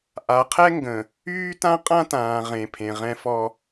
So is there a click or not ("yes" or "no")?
no